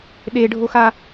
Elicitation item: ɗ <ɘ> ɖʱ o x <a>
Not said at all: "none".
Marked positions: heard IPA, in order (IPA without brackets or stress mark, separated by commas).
e, a